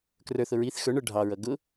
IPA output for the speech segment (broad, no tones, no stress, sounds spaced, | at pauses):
k r ə˞ θ ʊ ɹ i θ x ə˞ ɳ ə˞ ɖʱ ɑ ɹ ʌ ɡ ʊ